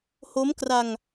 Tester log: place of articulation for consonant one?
glottal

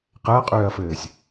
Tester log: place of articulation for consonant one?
uvular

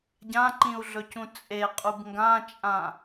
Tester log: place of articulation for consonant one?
palatal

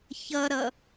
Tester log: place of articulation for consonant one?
palatal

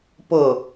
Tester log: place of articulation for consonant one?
labial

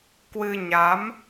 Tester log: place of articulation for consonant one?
velar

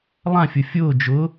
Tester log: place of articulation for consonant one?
alveolar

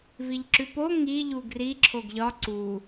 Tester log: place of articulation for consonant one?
labial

